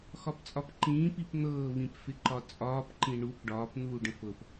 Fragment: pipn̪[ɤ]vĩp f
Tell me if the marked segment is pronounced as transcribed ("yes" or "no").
no